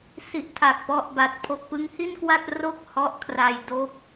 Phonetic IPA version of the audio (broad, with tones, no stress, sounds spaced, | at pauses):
s i˨˩ ʔ tʰ a˨˩ k̚ p ɔ˦˥ ʔ b a˨˩ t̚ pʰ o˨˩ k̚ p ɯ˦˥ ŋ h i˥˩ n k w a˥˩ t̚ r o˥˩ k̚ h ɔ˦˥ ʔ kʰ r a˧ j d o˥˩ k̚